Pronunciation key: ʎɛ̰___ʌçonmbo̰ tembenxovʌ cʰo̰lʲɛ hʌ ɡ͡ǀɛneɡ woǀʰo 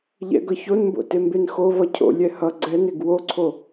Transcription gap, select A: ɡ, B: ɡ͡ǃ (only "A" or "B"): A